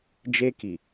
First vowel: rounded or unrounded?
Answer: unrounded